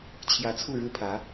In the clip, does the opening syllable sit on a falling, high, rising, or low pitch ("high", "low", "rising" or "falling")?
rising